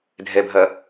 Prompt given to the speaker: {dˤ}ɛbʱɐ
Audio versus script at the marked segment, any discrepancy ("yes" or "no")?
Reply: yes